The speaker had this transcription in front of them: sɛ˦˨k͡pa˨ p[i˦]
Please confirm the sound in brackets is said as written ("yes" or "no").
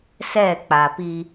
yes